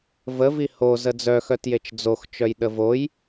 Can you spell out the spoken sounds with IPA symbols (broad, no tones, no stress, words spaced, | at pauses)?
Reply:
vəvi ho zəd͡zœxœtjet͡ʃ d͡zoxt͡ʃœj ɗəvoj